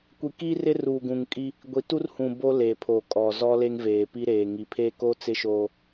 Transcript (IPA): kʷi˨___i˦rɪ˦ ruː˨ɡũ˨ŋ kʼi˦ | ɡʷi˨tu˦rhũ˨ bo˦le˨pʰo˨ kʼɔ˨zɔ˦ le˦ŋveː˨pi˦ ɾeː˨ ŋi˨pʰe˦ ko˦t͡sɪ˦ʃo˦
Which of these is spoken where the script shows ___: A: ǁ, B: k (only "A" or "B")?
B